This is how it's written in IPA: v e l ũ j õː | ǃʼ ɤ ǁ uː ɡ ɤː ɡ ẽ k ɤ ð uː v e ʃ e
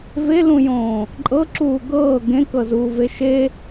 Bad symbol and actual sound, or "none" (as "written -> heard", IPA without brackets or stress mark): ð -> z